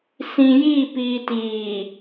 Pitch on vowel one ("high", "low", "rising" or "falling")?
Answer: low